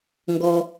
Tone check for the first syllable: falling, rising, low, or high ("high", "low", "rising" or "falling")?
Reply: low